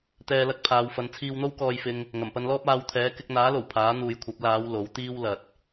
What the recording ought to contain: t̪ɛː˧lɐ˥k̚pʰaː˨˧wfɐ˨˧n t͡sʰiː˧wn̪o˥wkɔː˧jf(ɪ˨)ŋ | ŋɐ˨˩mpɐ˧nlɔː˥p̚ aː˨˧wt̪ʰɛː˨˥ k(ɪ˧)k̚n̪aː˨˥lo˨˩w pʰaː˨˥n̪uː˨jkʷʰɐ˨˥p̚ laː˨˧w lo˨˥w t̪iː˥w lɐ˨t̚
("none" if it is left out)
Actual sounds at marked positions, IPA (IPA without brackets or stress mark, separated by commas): ɪ˧, ɪ˧